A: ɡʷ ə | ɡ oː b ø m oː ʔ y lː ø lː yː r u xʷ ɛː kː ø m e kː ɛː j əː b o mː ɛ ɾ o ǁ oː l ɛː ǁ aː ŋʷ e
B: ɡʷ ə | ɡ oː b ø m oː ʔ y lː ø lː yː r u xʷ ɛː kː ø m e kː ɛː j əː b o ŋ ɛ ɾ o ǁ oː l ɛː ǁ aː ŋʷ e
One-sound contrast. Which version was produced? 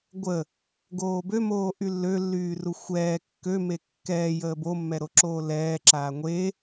A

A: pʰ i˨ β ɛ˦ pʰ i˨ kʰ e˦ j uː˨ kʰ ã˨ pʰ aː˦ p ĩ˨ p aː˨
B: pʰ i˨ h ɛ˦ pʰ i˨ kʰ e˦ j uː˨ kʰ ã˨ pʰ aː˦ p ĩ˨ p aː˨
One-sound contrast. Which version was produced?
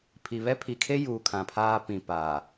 A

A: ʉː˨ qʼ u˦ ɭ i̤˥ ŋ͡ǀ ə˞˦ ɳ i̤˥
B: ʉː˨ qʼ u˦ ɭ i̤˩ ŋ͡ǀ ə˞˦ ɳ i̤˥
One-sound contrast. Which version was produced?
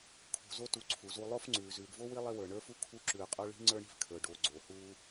A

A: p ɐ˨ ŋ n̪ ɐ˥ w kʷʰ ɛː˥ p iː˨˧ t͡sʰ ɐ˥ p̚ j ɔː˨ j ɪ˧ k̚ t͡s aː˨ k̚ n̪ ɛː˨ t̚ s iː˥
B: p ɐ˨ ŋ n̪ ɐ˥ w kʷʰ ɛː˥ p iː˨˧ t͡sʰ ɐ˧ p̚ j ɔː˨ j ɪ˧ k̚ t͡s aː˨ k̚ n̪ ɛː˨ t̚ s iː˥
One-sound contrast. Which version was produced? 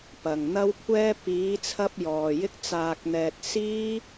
B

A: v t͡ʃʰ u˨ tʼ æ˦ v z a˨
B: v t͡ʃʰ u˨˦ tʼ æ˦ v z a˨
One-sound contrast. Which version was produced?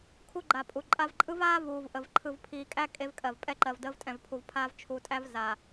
B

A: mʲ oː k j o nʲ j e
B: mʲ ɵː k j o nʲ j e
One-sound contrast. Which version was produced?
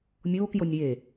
A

